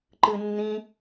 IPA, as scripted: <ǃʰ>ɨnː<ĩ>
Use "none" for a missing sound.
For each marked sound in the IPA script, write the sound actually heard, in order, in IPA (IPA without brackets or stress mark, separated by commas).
ǃ, ĩ